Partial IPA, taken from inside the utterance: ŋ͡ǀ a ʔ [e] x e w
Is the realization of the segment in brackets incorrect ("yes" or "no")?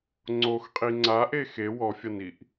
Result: no